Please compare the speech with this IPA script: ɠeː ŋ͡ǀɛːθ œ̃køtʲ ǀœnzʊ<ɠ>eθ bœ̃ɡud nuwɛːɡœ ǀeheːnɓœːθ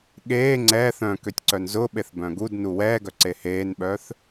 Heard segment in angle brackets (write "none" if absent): ɓ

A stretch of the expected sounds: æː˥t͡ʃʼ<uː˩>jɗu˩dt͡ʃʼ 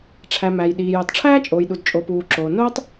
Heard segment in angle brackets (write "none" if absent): oː˩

